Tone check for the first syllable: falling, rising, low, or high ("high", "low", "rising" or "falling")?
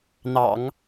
low